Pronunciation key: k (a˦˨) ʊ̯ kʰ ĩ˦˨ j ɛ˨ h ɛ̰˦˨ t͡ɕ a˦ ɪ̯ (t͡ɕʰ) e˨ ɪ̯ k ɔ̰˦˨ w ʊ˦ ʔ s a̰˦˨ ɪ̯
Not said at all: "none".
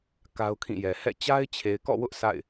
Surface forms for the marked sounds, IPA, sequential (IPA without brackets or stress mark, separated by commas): a˦, t͡ɕʰ